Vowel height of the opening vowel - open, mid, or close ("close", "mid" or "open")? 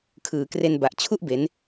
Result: close